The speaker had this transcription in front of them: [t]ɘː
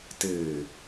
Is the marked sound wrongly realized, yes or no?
no